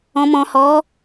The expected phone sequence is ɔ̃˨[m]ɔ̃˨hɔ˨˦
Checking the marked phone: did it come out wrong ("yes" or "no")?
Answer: no